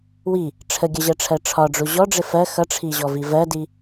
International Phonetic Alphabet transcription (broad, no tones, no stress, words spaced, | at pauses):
wi | ʈ͡ʂʰəɡʲʌʑɜʈ͡ʂʰɜ ʈ͡ʂʰɒɖ͡ʐu ʑɔɖ͡ʐɪ fɜ xʌʈ͡ʂʰiʑɔvi vɜdi